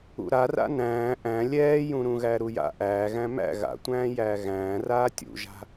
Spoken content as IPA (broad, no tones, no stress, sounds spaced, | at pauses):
ṵ ɾ a r a̰ n æ̃ː ʔ æ̃ lʲ ɛː j ũ ɾ ũ ɣ æ ɾ u j a̰ ʔ æː ɣ æ̃ m æ̰ ɣ a̰ tʷ æ̃ː j æː ɣ æ̃ː r aː tʲ ṵ ʒ a̤